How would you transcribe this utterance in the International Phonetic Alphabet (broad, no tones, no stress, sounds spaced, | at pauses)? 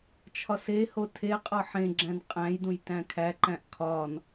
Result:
t͡ʃʰ ɒ s e h o tʰ e qʼ ɒ ħ ẽ ɡ͡ǁ æ̃ n qʼ æ̃ j d ũ j t æ̃ kʰ æ ǃ æ̃ ʔ kʰ ɒ n